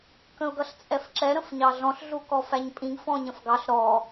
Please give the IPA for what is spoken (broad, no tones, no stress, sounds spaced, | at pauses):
k ə̃ ʊ̯ ɡ ʌ ɬ t͡sʼ ɛ f ǁ ɛ ɾ ə̃ f ɲ ɑ ɮ ɔ̃ ɬ ɮ u k ɔ f æ ɲ pʼ ĩ ɡ f ɔ̃ ɲ ə̃ f ɡ ɑ ɬ ɾ ɔ